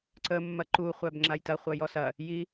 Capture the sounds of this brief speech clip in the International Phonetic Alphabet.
ǀ ə mː ɐ ǃ u χʷ æ b ŋ͡ǁ a j t ɐ χʷ ɐ j ɔ s ɐ | j i

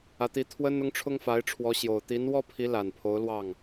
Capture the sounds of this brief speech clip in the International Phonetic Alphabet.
ä˧˥ t̪ i˧˥ t̪ʰ w ə˥ n ʊ˥ ŋ ʈ͡ʂʰ ʊ˥ ŋ f a˧˥ ɪ̯ ʈ͡ʂʰ w ɔ˧˥ ɕ j o˨˩ ʊ̯ t̪ i˧˥ n w ɔ˥ pʰ i˧˥ l a˨˩ n pʰ o˧˥ ʊ̯ l w ɑ˥˩ ŋ

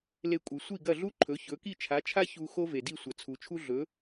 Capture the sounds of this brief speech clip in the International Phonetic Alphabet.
l e˧ kʷʼ ɨ˩ sʷ i˥˩ ɡ ɐ˥˩ ɮ u˥ ǃʰ ɵ˩˥ ç ɵ˩˥ k i˥˩ t͡ʃʰ a˩˥ t͡ʃʰ a˥ ç u˧ x o˥ v e˩ d i˥˩ sʷ ɐ˩ t͡sʰ u˩ t͡ʃʰ u˥ ɮ ɵ˩˥

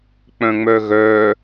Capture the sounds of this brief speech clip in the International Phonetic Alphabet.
k͡p œ̃ ŋ͡m œ ɣ œ

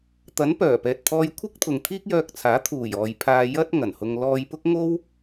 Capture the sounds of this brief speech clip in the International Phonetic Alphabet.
t̪ ɐ˨˥ n p œː˨˩ p ɛː˨ t̚ t̪ʰ ɔː˧ j kʷʰ ɪ˥ k̚ t̪ʰ ʊ˨ ŋ t̪ʰ iː˥ k̚ j œː˧ k̚ t͡sʰ aː˨˥ t̪ʰ uː˨˩ j ɔː˨ j pʰ aː˧ j ɐ˥ t̚ ŋ ɐ˨˩ n h ʊ˧ ŋ l ɔː˧ j p ʊ˥ k̚ ŋ o˥ w

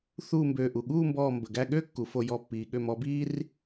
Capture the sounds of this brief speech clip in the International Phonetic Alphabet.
θ uː˥˧ m b øː˧˩ ʔ u˩ ɠ uː˥˧ m b ɔː˧˩ m b ə˩ ɡ æ˥˧ ɠ øː˥ kː u˩ f o˧˩ j ɔ˧˩ pː iː˩ ɠ ø˧˩ m ɔ˨˦ b iː˥ r

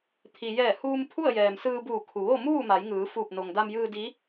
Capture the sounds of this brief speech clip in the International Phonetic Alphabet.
t̪ʰ i˩ j ɛː˧˩ h uː˧ m pʰ u˥˨ ə̯ j ɛː˩ m s ɯː˧ b uː˧˩ kʰ u˩ ʋ o˥˨ m uː˥˨ m a˩˧ j ŋ ɯː˩˧ f uː˧˩ p̚ n o˩ ŋ d a˧ m j ɯː˧ d i˧˥

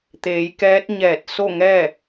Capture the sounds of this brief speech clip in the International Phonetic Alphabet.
t̪ eː˩˧ j k ɛː˧˥ t̚ ɲ ɛː˧˩ t̚ s o˥˨ ŋ ɛː˥˨

